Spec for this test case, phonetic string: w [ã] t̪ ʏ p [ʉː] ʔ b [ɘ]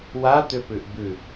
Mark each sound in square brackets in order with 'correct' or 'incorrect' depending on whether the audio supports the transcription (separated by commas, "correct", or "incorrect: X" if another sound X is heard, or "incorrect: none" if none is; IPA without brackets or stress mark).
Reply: incorrect: a, incorrect: ʉ, incorrect: ʉ